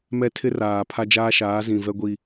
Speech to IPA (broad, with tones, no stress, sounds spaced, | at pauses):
m ɛ˦ tʰ ɪ˦ r aː˨ pʰ a˦ d͡ʒ aː˦ ʃ aː˨˦ z ĩ˨ v ɛ˦ ɡʷ i˦